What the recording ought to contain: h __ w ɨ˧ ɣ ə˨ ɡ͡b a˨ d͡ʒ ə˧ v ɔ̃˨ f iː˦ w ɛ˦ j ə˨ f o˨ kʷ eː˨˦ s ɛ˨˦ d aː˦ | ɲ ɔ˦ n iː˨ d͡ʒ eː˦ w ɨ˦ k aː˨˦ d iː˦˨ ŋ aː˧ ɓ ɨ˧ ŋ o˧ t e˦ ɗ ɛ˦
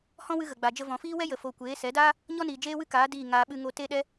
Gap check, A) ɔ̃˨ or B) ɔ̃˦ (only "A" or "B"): B